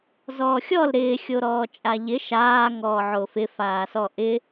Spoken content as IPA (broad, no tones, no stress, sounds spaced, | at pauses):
z ɔː xʲ ɔ l ɾ ɪː xʲ o ɾ ɔː t͡ʃʼ a ʎ ɪ ʃ aː ŋ ɔː ʕ o f ɪ f aː s ɔ ʔ ɪ